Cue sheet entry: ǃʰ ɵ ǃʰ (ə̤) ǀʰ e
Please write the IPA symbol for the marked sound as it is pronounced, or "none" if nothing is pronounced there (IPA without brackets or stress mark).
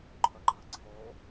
ə̤